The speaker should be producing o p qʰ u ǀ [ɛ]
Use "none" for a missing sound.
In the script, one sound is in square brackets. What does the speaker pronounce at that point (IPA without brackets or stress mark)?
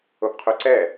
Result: ɛ